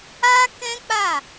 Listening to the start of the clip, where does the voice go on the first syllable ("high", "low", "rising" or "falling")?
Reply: high